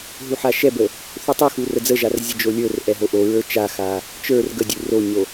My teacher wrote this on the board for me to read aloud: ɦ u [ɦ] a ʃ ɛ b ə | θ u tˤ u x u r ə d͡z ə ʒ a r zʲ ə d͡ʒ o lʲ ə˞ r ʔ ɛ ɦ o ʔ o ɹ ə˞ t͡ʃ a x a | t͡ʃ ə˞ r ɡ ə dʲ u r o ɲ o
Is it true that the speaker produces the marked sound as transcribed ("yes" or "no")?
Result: no